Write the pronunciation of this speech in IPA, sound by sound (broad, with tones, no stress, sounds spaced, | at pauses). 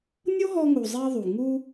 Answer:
nʲ o˦ ɦ ɔ˧ ŋ u˨ zˤ i˧ ðˤ u˨ ŋ u˧